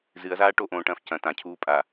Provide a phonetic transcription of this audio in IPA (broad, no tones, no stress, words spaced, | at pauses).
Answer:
zɨɐ̯zaː ʈoʔõːʈɐ̃ːf cɐ̃ tãcʰuː pʼa